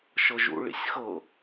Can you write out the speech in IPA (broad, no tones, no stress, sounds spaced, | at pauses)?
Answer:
ʃ ɤ ʒ ṵ ɭ ḭ sʲ x ɤ